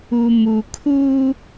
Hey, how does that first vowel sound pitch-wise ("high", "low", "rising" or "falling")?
low